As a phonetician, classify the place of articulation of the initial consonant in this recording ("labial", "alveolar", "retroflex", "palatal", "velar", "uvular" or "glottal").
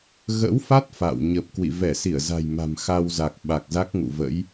velar